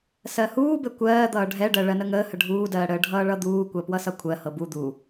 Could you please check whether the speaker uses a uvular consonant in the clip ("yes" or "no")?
no